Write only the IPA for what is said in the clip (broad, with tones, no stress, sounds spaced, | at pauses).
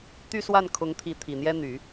t̪ y˥˧ s w a˥˩ n kʰ ʊ˧˥ ŋ t̪ʰ i˧˥ t̪ʰ i˨˩ n̪ j ɛ˥ n̪ y˨˩˦